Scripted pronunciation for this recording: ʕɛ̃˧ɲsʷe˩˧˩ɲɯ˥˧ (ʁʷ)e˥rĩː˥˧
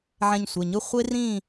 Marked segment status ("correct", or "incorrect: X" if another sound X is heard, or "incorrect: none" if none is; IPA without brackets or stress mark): incorrect: χʷ